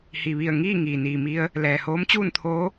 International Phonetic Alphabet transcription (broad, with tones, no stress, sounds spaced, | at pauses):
h i˩ ʋ i˧˩ ə̯ ŋ iː˥˨ ŋ iː˩ n iː˩ m i˧ ə̯ | l ɛː˩ h oː˧˥ m t͡ɕ uː˥˨ n t̪ʰ oː˧˥